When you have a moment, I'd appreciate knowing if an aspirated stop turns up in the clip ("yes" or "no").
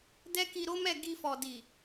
no